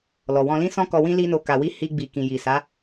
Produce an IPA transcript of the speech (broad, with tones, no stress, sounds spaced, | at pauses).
l ɔ˨ w ɔ̃˧ l ĩ˦ s ɔ̃˦ k ɔ˧ w ĩ˦ l i˦ n o˧ k a˨ w i˧ h i˧ ɡ͡b i˨ k ĩ˨ j i˨ s a˨˦